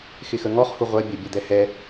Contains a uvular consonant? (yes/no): yes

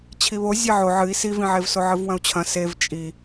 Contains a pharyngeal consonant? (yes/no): yes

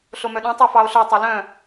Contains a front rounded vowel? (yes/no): yes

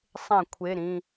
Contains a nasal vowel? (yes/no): yes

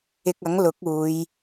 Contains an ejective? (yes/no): no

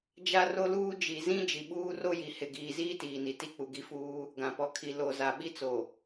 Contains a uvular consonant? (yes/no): no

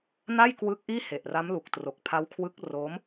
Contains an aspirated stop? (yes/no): yes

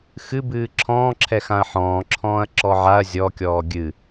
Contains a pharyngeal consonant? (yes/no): yes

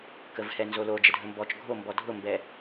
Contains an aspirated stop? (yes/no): no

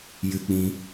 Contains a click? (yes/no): no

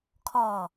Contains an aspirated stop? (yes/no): yes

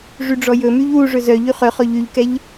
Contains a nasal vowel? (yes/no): no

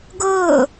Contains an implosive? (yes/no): no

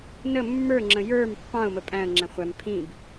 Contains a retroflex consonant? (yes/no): no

